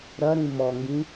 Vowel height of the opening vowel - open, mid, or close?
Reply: open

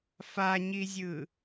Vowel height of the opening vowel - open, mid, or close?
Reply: open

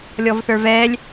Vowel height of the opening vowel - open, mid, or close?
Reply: mid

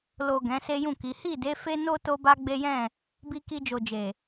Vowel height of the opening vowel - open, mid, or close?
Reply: mid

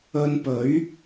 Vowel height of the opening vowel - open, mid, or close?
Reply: mid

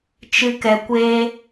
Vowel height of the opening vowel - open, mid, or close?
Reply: close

